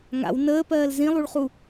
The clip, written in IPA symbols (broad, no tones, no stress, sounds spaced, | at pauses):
ŋ a̰ w n əː p ɜː l z ĩ lˠ u ɭ χ u